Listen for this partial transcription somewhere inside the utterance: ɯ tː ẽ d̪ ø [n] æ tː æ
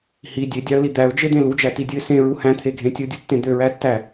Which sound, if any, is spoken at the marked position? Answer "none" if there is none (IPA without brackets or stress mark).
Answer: ɹ